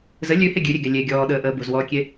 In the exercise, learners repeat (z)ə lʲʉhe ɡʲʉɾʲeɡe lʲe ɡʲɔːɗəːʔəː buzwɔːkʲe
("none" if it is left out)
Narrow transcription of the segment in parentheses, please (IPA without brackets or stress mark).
z